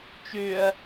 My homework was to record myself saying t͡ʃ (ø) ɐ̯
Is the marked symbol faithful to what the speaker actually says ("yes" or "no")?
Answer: yes